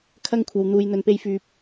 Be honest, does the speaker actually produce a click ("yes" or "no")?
no